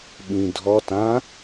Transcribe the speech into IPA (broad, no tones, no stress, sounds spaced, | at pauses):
ɓ ĩ dʱ ɔ t ã